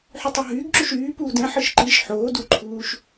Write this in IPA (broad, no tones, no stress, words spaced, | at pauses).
ħytˤɯɦyːɡǁuʃ yːpuːd ɛ̃ħɯʃ ǃiʃ ħoː duǃʰuːʃ